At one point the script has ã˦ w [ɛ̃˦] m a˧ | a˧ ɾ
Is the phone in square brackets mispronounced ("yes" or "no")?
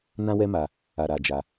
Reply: yes